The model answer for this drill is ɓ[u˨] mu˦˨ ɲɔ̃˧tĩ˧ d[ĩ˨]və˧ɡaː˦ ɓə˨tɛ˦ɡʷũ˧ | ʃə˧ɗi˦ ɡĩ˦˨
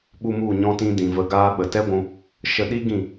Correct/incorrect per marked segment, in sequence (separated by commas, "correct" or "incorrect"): incorrect, correct